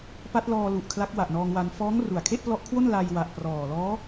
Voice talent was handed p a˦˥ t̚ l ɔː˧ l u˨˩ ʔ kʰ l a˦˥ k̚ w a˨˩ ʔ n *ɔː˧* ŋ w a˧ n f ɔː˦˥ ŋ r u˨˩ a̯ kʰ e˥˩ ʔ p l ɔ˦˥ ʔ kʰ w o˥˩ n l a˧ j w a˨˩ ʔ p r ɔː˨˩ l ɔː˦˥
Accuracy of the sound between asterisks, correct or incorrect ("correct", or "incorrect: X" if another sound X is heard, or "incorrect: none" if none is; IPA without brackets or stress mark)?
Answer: correct